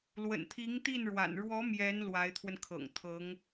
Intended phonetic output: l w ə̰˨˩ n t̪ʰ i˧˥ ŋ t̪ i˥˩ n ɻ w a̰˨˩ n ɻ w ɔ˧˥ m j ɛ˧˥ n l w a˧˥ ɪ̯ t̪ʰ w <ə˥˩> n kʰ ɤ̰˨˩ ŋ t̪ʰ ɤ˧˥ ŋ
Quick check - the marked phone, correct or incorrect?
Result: incorrect